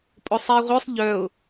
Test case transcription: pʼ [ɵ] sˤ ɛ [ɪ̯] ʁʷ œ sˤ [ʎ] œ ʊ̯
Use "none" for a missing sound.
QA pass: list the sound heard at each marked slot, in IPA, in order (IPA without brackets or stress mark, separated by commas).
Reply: o, ɪ̯, ʎ